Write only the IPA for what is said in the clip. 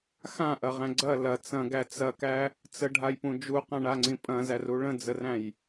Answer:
x ã ʔ ɐ ʁ æ̃ ɡ͡ǀ ɐ l ɐ t͡s ɐ̃ ɡ æ t͡s ɐ k æ | t͡s ə ɖʱ a j p ũ d͡ʒ u q ã ɳ a ŋ͡ǀ ĩ pʼ ɐ̃ z æ r u ɭ ə̃ d͡z ə r æ̃ j

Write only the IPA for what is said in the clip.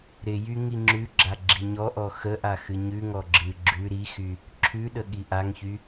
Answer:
ɾ ɪ j y ŋ i ŋ͡ǁ ʉ ɡ͡ǁ a ɡ͡ǁ i ɲ ɔ ʔ ɔ x ə ʔ a x ɨ ɲ ʉ ŋ ɔ ɡ͡ǁ ɨ ɡ͡ǁ ʉ ɾ i x y | ǁʰ ʉ ɗ ə ɠ i ʔ a ŋ ç y

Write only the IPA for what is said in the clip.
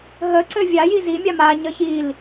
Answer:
ɦ ə ǀ ɘ vʲ a j i z i mʲ a m a ɲ ə ç i l

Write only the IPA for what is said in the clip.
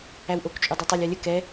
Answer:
æ w ʔ o k t͡ʃʼ u dˤ ɛ tˤ a lʲ a lʲ ə k ɛ

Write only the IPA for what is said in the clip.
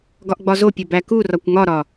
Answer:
ɡ ɒ ʔ ɡ͡b ɒ z o pʲ o b æ k u r ɒ kʷ ŋ ɒ ɾ ɒ

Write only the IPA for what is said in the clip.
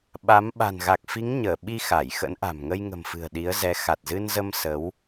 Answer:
ɓ a˨˦ m ɓ a̤˨˩ n ɣ a˨˩ k̚ f i˨˦ ŋ ɲ əː˧˩ ɓ i˧ x a˧˩ j x ə̰˧˥ n ʔ a̤˨˩ m ŋ ə˧ j ŋ ə̤˨˩ m f ɨ̤˨˩ ə̯ ɗ i˨˦ ə̯ z ɛ˨˦ x a˨˩ t̚ z ɨ˧ n z ə˧ m s ə˨˦ w

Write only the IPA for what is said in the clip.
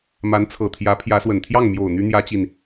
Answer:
m a˧˥ n t͡sʰ ɤ˨˩ t̪ʰ j ä˧˥ pʰ j ä˧˥ s w ə˨˩ n t̪ʰ j ɑ˥˩ ŋ m j o˨˩ ʊ̯ n̪ y˥ n̪ j ä˥ t͡ɕ i˨ n

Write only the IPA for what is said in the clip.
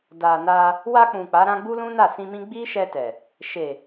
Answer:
d a˨ n a˧ | w a˧ k͡p ũ˨ k͡p a˨˦ ɾ ã˦ ɡ͡b u˦ l ũ˦ n a˦˨ s ĩ˧ m ĩ˦ ɡ͡b i˦ ʃ ɛ˧ t ɛ˨ | ʃ e˨

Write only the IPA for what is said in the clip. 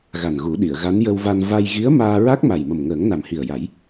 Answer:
ɣ a˨˩ n ɣ u˨˩˦ ɗ i˨˩˨ ə̯ ɣ a˧˥ n j ə˧ w v a˧ n v a˧ j ɣ i˧˥ ə̯ m aː˧ ɹ a˦˥ k̚ m a˨˩ j m ə˨˩ m ŋ əː˨˩˦ ŋ n a˨˩ m h i˨˩ ə̯ j a˨˩˦ j

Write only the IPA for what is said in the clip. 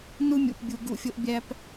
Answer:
n u˦ mʲ ṵ˨ p bʲ u˨ ɡ ṵ˧ fʲ o˧ ʔ bʲ æ˧ p

